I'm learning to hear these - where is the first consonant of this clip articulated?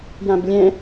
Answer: palate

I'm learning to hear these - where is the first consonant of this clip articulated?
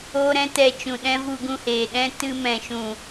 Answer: tongue tip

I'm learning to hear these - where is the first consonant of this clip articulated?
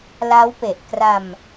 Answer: tongue tip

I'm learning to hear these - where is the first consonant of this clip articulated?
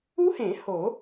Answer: throat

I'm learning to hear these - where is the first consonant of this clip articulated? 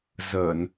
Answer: tongue tip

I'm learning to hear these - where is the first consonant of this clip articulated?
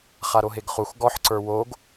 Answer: uvula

